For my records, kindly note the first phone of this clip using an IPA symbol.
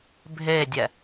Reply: bʱ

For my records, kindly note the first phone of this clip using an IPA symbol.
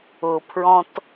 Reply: ʊ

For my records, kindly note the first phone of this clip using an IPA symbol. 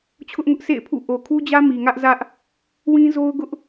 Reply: t͡ɕʰ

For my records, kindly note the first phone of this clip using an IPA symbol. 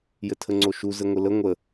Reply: j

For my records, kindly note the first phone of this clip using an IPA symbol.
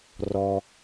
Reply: r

